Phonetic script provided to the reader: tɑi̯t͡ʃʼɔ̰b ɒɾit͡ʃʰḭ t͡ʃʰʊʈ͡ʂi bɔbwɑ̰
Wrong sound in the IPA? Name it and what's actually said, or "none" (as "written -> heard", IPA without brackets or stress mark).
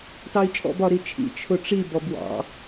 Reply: none